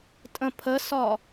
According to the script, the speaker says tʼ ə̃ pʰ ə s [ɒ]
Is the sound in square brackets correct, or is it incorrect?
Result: correct